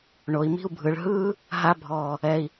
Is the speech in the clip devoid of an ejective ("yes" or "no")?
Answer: yes